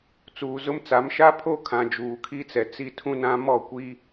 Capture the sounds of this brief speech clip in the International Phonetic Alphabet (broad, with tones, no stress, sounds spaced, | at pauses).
t͡s uː˨ z ʊ˦ m t͡s a˨˦ m ʃ a˦ pʰ o˦ kʰ ã˨ d͡ʒ uː˨ kʰ i˦ t͡s ɛ˨ t͡s i˦ tʰ ũ˦ n ã˦ m ɔ˦˨ kʷ i˦